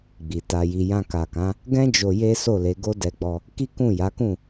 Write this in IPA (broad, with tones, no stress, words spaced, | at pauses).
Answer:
ɡ͡bi˨ta˧ji˧ jã˧ ka˨kã˨˦ | ɡɛ̃˦ d͡ʒo˧je˦ so˦˨le˨˦ ɡo˦dɛ˧ɡ͡bɔ˧ | ki˦kũ˦˨ja˨˦kũ˦˨